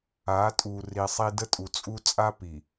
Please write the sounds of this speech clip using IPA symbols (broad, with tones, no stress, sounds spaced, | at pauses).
a˨˦ tʼ u˨ r i˨ sˤ i˨ d ə˦ tʼ u˨ t͡sʼ u˦ t͡sʼ a˦ p i˨